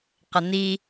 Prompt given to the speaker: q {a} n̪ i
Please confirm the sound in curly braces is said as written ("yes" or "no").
no